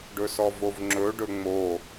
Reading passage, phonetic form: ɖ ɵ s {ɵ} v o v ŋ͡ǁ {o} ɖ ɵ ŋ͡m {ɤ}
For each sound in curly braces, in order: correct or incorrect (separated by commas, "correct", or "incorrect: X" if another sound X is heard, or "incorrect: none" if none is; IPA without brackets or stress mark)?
incorrect: ɔ, incorrect: ɵ, incorrect: o